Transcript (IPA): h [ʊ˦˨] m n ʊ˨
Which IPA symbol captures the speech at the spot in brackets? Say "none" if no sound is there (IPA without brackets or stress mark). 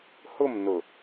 ʊ˦˨